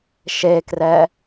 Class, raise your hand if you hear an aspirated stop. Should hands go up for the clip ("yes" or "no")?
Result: no